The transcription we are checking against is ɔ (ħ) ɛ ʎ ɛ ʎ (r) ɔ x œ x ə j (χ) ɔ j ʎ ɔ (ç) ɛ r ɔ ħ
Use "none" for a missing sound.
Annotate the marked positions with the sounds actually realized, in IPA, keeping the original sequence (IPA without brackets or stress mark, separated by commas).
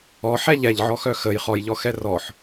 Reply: ħ, ʕ, χ, x